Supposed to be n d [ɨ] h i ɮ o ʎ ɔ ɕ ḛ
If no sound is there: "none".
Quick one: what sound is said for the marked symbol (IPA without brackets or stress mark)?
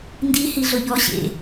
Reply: i